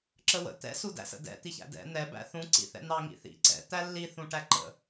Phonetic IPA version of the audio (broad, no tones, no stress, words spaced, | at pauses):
ǁəwə̰ t̪ɛ̰ sudæ̰sə̰dɛ̰ t̪içæ̰dɛ̰ n̪ɛ bæ̰θũ ǀḭθɛ̰n̪ɑ ŋḭθḭ ǀɛ̰ t̪ælːi θũʈæǃə̰